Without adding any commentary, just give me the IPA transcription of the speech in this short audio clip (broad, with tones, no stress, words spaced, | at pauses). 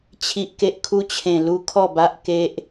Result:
t͡ɕʰi˨ʔke˨ʔ kʰu˧t͡ɕʰẽ˨˩lu˧ kʰɔ˥˧ba˦ʔke˦ʔ